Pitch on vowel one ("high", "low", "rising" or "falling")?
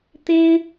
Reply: high